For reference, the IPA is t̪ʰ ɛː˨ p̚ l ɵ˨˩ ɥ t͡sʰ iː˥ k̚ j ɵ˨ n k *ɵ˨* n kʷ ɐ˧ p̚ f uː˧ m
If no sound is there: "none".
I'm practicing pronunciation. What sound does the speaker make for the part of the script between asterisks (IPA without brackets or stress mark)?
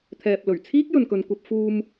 ɵ˨